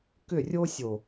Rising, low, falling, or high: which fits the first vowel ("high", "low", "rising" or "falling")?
falling